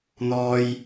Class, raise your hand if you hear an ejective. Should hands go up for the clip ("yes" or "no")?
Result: no